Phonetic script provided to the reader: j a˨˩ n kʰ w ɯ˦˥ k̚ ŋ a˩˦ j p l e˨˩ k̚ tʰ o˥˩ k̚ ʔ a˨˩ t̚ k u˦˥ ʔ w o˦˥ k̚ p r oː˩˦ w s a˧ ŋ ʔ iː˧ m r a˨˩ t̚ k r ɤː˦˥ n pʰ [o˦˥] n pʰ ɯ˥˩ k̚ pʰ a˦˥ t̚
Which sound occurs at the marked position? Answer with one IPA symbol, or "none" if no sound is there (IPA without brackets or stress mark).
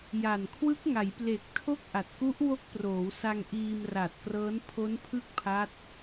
o˦˥